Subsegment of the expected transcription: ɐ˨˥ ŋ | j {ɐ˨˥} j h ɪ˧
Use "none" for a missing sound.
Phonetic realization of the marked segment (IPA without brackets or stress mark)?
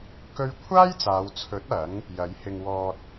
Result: ɐ˨˥